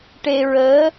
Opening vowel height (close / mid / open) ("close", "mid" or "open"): mid